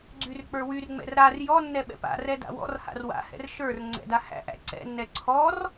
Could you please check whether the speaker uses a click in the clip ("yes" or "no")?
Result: yes